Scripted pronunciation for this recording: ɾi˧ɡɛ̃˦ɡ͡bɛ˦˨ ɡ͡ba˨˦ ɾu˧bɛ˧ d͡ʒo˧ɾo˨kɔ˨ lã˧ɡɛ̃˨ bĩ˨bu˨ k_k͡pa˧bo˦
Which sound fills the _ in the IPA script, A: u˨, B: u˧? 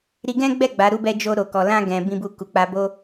A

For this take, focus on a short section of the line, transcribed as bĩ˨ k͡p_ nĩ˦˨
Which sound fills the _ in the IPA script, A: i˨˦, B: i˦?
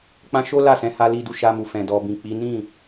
A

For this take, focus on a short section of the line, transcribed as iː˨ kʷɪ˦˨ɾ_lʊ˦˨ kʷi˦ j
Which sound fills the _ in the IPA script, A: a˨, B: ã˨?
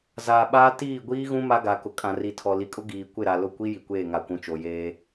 A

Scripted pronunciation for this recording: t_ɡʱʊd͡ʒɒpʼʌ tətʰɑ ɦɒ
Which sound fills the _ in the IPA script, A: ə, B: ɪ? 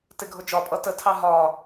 B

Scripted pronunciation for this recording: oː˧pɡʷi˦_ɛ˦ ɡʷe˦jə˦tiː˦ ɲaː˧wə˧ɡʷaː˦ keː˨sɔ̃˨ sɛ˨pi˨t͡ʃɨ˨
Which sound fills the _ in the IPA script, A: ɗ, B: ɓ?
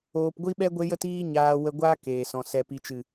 B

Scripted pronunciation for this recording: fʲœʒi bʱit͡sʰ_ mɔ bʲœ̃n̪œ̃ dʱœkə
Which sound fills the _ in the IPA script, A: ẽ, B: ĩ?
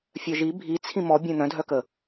B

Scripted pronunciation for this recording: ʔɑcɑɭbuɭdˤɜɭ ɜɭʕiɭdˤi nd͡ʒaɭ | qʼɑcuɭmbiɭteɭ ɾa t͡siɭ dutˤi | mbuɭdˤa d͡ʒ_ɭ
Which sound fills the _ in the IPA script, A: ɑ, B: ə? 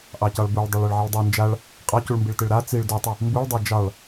A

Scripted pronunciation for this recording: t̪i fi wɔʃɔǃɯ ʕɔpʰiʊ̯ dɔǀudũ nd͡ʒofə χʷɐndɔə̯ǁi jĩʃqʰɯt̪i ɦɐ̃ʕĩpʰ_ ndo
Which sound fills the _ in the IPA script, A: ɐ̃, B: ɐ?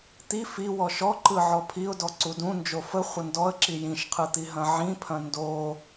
A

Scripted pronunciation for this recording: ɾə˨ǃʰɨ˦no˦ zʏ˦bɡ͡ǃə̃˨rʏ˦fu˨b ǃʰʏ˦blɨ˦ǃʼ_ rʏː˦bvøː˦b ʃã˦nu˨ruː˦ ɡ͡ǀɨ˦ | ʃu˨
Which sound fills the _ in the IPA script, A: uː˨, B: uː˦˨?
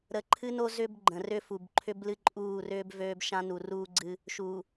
B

